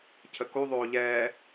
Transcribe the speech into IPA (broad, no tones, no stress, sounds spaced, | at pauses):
cʰ ə k u ðˤ oː ʎ ɛː